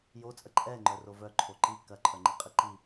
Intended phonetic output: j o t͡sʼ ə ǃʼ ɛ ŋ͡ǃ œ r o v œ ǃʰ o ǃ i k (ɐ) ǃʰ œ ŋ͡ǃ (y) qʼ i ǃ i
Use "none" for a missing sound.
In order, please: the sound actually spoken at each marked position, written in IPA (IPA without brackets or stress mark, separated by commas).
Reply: ɐ, i